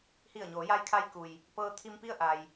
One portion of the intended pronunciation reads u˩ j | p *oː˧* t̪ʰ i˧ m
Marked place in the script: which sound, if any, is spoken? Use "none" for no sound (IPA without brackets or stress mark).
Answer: ɤː˧